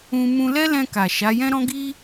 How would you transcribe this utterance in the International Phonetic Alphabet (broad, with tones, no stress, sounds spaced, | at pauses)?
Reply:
ũ˧ m ũ˧ l ɛ˦ l ɛ̃˧ k a˨ ʃ a˨˦ j ɛ̃˦ ɾ ɔ̃˦ ɡ i˦